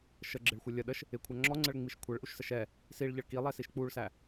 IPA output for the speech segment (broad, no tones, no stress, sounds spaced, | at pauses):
ʃ ə ɡ͡ǁ ɪ ɭ xʷ ə lʲ ə ɗ ə ʃ | ɪ kʷʰ æ ŋ͡ǁ ɔ ŋ͡ǀ ə ɭ ŋ͡m i ʃ kʷʰ ɛ ɭ ʔ u ʃ s ə ʃ ɛ | s i ɭ ʎ ə ɭ k i lˠ ɛ s i ʃ k͡p u ɭ s æ